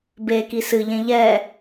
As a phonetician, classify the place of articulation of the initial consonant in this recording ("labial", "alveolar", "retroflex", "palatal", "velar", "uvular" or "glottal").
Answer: labial